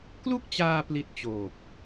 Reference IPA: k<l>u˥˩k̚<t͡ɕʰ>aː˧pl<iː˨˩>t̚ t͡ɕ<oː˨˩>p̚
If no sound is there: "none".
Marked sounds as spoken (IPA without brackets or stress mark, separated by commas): l, t͡ɕ, i˨˩, oː˨˩